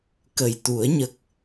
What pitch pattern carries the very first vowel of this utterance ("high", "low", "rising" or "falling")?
low